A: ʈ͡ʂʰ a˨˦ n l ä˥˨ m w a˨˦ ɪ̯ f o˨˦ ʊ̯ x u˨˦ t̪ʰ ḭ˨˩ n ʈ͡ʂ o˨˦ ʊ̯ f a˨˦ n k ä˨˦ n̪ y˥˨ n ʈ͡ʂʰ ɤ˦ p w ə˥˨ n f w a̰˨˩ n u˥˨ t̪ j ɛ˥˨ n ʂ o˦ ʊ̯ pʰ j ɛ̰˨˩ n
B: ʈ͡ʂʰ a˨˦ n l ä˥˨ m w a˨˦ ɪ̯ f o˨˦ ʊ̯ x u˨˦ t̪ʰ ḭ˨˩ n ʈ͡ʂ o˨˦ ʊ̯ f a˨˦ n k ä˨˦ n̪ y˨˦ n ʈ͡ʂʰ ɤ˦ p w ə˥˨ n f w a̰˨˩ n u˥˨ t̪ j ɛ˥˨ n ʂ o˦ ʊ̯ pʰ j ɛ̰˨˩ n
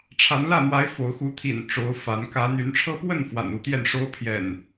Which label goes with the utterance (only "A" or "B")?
B